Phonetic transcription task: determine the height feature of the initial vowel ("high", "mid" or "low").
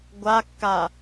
low